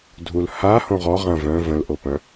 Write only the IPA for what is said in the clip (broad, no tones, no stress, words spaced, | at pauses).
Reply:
dʱulha hõʁɔ ʁɐ̃ vœ̃ və̃lʔopœ̃